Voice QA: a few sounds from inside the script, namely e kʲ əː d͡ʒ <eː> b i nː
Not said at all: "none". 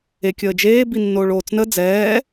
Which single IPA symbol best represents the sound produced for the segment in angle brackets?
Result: eː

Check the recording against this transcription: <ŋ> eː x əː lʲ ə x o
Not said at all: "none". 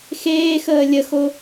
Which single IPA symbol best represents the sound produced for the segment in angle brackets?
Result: x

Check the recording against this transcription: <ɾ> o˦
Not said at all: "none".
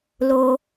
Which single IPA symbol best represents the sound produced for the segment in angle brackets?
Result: l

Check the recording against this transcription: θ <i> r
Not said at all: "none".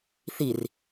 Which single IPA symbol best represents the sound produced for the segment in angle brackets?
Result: i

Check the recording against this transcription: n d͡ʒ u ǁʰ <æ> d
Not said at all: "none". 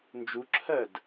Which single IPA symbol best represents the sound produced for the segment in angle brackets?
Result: ɜ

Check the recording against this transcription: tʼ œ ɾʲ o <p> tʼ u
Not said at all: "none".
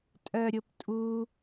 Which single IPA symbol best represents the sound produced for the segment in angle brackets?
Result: p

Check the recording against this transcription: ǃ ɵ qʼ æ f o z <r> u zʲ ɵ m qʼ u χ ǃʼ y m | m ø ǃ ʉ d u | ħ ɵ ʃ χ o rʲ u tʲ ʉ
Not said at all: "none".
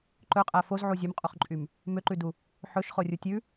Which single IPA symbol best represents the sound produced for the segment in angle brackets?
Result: ʕ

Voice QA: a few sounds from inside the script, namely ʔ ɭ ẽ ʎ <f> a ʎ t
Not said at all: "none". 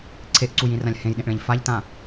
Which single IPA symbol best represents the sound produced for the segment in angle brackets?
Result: f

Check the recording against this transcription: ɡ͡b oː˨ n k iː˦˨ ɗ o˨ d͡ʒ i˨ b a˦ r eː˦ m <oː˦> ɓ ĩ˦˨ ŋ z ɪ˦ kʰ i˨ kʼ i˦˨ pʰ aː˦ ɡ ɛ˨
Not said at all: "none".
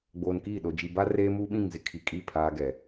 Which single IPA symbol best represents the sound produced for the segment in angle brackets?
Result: uː˦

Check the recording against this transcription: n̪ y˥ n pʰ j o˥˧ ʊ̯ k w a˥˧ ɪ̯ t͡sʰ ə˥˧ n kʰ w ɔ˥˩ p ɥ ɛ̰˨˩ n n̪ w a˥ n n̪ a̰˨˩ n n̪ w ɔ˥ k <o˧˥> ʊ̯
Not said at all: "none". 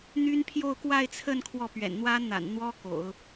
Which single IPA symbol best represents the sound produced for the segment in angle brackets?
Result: o̰˨˩˦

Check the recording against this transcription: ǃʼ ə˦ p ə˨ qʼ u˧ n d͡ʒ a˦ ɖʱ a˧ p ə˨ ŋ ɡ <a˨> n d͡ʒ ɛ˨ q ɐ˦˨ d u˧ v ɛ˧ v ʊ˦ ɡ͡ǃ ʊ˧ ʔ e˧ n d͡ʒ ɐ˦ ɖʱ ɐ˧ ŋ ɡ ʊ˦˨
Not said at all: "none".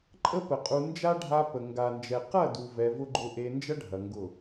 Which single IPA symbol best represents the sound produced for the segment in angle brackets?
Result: a˨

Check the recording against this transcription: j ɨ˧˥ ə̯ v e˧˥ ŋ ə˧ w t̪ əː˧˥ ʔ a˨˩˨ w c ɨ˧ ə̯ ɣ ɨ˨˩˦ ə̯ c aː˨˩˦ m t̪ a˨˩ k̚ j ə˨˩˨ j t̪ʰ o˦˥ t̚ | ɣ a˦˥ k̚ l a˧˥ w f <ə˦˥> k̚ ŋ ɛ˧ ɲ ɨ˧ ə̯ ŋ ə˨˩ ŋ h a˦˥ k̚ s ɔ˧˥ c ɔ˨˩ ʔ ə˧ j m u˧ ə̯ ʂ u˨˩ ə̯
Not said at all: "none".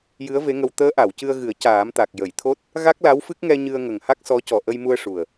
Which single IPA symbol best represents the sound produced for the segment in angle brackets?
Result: ɨ˦˥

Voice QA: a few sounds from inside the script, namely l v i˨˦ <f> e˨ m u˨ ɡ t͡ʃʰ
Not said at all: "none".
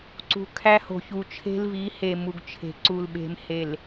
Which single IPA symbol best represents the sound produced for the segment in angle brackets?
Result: h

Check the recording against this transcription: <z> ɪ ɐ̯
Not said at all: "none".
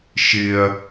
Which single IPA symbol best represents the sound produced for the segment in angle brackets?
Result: ʃ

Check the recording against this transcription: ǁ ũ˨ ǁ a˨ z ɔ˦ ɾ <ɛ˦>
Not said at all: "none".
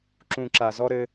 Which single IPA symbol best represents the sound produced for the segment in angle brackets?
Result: ɘ˦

